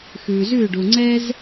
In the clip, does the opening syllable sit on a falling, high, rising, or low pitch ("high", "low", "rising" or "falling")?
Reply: low